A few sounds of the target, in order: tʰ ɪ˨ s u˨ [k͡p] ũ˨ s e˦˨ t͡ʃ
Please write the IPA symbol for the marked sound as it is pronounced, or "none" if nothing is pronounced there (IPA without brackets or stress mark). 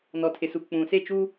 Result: k͡p